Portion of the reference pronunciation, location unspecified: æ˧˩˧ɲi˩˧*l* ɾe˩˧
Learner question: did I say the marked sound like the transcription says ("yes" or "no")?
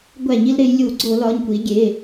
yes